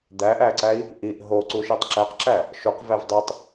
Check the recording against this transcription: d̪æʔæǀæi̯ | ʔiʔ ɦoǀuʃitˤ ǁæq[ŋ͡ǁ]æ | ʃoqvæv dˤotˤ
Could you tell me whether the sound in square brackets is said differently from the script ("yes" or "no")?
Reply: yes